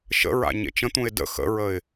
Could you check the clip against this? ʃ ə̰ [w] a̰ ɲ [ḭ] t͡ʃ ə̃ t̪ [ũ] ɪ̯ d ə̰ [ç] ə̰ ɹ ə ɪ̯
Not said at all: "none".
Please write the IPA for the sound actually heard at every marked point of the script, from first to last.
ɹ, ḛ, ũ, x

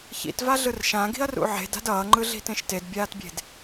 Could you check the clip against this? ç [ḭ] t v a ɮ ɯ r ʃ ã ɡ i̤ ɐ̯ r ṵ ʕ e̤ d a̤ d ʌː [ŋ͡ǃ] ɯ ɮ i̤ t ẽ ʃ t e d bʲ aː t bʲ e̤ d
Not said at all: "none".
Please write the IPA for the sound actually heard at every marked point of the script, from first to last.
ḭ, ŋ͡ǃ

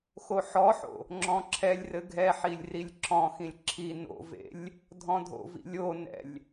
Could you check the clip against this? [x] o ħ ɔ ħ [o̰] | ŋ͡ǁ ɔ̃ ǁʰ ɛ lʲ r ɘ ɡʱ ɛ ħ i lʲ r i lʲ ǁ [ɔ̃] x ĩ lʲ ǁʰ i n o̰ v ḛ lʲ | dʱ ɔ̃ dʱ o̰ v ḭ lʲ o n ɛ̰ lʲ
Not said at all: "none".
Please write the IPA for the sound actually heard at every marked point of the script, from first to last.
x, o̰, ɔ̃

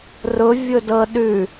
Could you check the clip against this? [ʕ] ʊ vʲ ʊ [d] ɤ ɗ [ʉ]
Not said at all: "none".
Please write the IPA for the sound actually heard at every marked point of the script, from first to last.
r, d, ʉ

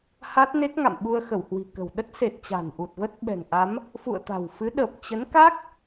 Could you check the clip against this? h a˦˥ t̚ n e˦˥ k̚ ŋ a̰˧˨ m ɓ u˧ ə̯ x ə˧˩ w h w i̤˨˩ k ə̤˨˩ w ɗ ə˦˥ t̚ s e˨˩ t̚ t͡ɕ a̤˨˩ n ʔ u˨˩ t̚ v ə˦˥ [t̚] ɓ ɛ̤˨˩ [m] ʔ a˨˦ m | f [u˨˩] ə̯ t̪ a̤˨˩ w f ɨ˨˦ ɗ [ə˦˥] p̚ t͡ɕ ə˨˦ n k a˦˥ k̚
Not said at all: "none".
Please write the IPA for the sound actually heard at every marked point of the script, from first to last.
t̚, ŋ, ṵ˧˨, ə˨˩

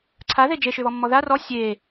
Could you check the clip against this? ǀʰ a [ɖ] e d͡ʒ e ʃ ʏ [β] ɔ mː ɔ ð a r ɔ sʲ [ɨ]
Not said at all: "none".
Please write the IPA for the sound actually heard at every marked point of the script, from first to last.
ð, β, e

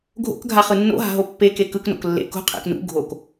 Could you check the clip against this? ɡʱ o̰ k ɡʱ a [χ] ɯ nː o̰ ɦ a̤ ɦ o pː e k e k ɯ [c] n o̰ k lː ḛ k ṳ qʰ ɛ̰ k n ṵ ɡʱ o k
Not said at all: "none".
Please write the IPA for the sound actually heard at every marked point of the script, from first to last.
χ, k

